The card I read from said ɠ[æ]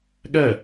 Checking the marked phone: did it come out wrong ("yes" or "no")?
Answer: yes